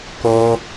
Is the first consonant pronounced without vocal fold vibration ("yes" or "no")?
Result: yes